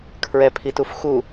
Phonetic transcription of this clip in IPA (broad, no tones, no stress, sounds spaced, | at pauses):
kʰ ɹ ɛ pʰ i t u f x u